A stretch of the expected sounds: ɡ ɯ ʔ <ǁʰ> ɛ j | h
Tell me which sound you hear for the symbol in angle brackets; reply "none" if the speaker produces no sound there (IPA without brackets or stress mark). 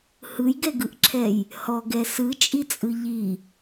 ǁʰ